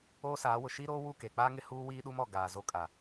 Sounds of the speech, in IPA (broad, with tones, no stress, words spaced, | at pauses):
oː˦saː˨˦ wʊ˨ʃiː˦ɾoː˦ wu˦˨ke˨k͡paː˦ŋɪ˦ huː˦wiː˦ɗu˦m ɔ˨ ɡaː˨zo˦ kʼa˨